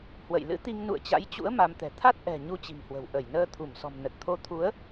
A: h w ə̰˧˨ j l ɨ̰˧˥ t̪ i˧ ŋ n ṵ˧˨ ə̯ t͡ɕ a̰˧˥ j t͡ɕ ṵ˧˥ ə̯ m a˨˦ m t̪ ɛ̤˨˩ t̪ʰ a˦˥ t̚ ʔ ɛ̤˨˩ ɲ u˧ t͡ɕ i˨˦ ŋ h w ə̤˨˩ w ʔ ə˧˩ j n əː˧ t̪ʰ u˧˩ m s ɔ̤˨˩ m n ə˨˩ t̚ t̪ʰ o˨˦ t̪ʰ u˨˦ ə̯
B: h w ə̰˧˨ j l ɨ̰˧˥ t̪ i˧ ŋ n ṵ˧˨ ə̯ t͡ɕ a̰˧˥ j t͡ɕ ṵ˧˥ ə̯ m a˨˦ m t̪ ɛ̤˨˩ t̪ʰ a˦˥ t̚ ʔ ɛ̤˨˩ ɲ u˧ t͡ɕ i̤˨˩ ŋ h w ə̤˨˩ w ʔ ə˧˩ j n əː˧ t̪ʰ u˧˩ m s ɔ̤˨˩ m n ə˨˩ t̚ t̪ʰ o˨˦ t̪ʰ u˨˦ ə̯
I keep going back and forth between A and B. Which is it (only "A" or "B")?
B